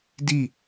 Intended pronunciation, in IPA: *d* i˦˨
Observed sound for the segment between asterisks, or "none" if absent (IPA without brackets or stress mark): d